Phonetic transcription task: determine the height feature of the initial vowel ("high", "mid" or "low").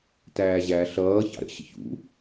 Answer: low